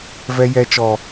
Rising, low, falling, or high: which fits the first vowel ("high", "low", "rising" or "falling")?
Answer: high